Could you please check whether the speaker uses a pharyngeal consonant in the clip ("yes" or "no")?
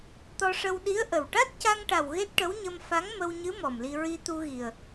no